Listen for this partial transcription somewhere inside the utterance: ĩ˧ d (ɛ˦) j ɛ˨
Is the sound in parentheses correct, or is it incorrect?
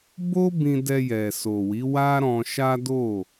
incorrect